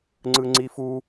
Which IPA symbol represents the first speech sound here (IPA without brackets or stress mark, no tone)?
ŋ͡ǀ